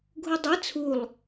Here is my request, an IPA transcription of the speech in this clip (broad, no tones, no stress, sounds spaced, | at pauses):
ɡʱ u dˤ ɛ t͡sʰ u lˠ